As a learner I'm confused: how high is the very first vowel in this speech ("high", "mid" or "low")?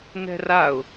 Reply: mid